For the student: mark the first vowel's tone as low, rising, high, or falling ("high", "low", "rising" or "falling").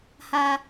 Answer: low